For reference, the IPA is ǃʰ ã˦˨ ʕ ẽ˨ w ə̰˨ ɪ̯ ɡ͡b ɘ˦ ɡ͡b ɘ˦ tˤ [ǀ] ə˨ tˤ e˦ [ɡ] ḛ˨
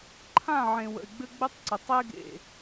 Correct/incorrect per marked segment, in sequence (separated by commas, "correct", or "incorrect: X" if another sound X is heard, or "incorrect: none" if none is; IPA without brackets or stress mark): correct, correct